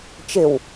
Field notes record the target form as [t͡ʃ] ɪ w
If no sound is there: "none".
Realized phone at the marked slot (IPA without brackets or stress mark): t͡ʃ